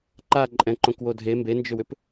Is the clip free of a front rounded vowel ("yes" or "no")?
no